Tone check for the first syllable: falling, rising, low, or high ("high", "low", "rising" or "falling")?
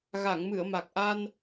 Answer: low